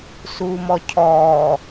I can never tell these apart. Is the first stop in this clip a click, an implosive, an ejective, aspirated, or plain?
aspirated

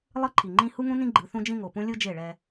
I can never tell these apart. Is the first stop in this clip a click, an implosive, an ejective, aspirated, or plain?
click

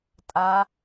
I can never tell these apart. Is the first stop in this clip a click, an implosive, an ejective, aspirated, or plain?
ejective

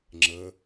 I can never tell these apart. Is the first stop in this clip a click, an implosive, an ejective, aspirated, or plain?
click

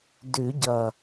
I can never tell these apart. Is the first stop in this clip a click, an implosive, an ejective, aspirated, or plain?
plain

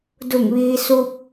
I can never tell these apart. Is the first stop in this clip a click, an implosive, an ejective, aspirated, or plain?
plain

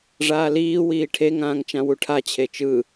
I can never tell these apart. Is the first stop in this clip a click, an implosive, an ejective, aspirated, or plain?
aspirated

